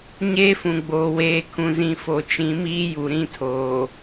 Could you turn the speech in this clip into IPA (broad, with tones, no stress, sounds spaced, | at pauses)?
ɲ eː˦ f ũ˨ ɡ͡b oː˨ w eː˨˦ kʰ ũ˨ z ĩ˨ f o˨ t͡ʃ ĩ˨˦ m iː˦ j u˨ ɾ ĩ˦˨ tʰ oː˨